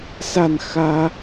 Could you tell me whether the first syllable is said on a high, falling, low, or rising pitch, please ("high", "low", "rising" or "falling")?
falling